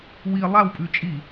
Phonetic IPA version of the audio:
w i lˠ a w pʼ ʉ t͡ʃʼ i

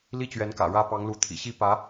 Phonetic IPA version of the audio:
l i˥˩ t͡ɕ ɥ ɛ˧˥ n k ä̰˨˩ ɻ ä˥ p ɑ˧˥ ŋ l u˧˥ t̪ʰ ḭ˨˩ ɕ i˥˩ p ä˧˥

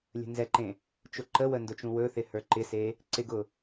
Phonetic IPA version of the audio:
lʲ ə̤ n z ɛ ǃ ẽ | t͡ʃ ʊ ǃ ə w ə n d ʊ t͡ʃ ũ w ɵ θ ɪ h ə˞ ǃ ɪ s e | ǀ ɪ ɡ ʊ

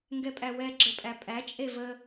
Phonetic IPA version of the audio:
ŋ ɡ ɛ pʼ æ w ɛ ɡ͡ǁ ə pʼ æ pʼ æ t͡ʃʼ e v ə

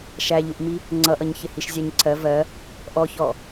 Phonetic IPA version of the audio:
ʃ æ ʎ u ʔ m i | ŋ͡ǀ ʌ ʔ ʌ ɲ ç ɪ h i ʃ zʲ æ ɲ ǀʰ ɜ v ɜ | ʔ ɔ ç ɔ

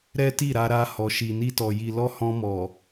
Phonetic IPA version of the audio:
ɾ ɛ˦ t i˦˨ ɾ a˧ ɾ a˧ h ɔ˨ ʃ i˨ n i˧ t ɔ˨ j i˨ l ɔ˧ h ɔ̃˧ m ɔ˨

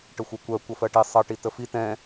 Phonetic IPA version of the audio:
ʈ ə xʷ ʌ kʷ ɜ kʷ ʌ f ɜ ʈ i sˤ ʌ ʈ i t ə f i t ɛ̃

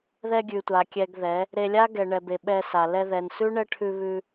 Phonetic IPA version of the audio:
ð ɛ˧ ɡʲ ʉ˨ tʷ a˨ kʲ ɛ˧ ɡ ð ɛ˨˦ | ɾ e˧ lʲ a˦ ɡ ɛ˨ ɳ ɛ˨ b e˨ ɓ ɛ˧ s a˨ l ɛ˧ ð ɛ˨ n s ʉ˦ ɳ ɛ˦ ʈʰ ʉ˧ β ʉ˧

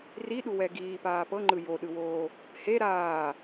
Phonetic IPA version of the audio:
r i ɗ u w ɛ ɡ iː p aː p ɤ ŋ͡ǃ ɯ j o ɗ ɯ w oː | h e ɾ aː

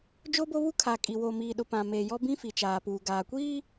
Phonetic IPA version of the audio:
d͡ʒ o˦ b o˦ β u˦ kʰ a˨ kʼ i˨ w o˨ m iː˨ ɗ ʊ˨ p ã˨ m eː˨ j ɔ˦ b ĩ˦ f i˨ t͡ʃ aː˨ p uː˨ ɡ aː˨ kʷ iː˦

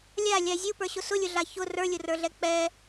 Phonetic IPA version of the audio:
lʲ a lʲ a zʲ u p ə˞ ɕ ʊ s ʊ lʲ ʊ ɮ a ç ʊ r ə˞ lʲ ʊ r ə˞ ɮ ɛ k͡p ɛ

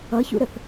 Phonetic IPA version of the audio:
ʌ ç ṵ ɾ ə θ

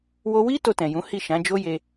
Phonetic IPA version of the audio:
w o˧ w i˦ t o˧ t ɛ̃˨ j ũ˨˦ h i˦˨ ʃ ã˨˦ d͡ʒ o˦ j e˧

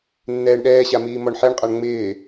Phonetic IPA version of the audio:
nː ɛː ɳ ɗ ɛː ɕ a m iː m ɔ ɳ ħ e ɳ qʼ a ɳ ŋ͡m ɪː

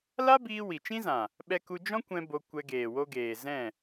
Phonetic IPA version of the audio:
l a˦ b iː˧ w i˨ t͡ʃ ĩ˦ z ã˨ | ɓ ɛ˦ k u˦ d͡ʒ ɔ̃˦ kʷ ɛ̃˧ b o˧ kʷ ɛ˧ ɡ eː˨ w o˧ ɡ eː˨ z ɛ̃˦˨

